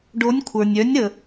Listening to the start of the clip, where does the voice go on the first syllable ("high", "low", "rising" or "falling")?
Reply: rising